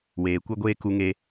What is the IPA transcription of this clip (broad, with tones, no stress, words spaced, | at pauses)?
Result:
weː˨kʷɛ˦ɡʷeː˦ ku˧ŋe˧